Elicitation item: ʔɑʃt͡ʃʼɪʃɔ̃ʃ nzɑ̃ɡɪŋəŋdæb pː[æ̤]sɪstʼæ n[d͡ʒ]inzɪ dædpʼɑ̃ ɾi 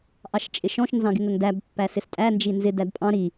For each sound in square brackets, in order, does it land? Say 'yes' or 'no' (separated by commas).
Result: no, yes